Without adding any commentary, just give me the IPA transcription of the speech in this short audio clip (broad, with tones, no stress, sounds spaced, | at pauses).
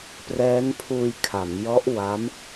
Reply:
p r ɛː˦˥ n pʰ uː˧ j kʰ a˩˦ m j ɔ˦˥ ʔ w a˦˥ m